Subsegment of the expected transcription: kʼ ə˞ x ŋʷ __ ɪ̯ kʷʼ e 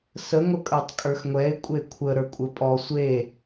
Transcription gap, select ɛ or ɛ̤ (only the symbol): ɛ